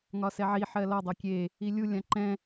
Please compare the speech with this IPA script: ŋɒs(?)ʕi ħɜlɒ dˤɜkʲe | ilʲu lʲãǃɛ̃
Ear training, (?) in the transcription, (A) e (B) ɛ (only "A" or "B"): B